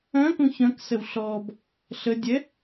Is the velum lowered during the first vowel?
yes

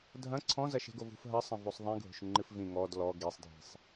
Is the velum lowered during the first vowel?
yes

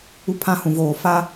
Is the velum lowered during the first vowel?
no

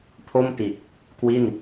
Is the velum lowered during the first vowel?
no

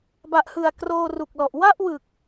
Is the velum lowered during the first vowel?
no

